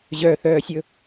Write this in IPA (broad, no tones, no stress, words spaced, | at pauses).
ʑœθœːsʲɵ